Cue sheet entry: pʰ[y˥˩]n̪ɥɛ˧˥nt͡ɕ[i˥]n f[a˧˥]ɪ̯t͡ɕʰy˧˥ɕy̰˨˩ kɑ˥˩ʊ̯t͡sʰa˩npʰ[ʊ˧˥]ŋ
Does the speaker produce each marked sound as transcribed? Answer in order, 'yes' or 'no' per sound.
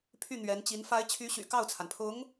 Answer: yes, no, yes, yes

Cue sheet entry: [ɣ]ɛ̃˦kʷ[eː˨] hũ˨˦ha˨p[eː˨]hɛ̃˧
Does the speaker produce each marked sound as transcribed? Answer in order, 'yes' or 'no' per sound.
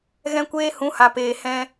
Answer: yes, no, yes

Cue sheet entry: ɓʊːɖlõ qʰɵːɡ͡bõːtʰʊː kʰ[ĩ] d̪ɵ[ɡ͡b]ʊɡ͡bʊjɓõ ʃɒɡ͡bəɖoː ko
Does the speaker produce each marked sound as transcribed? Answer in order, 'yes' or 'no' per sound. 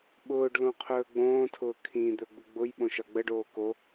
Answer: yes, yes

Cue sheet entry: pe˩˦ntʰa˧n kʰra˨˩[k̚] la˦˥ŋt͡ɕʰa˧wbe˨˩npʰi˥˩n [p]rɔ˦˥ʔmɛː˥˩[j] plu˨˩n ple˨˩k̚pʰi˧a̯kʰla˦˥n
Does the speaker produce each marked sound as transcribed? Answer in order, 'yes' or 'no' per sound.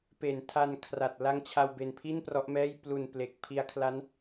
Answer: no, yes, yes

